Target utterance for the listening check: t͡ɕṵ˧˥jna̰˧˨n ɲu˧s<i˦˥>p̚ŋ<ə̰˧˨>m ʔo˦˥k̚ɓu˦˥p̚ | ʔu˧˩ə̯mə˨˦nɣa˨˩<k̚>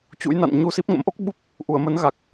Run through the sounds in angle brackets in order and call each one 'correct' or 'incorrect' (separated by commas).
correct, incorrect, correct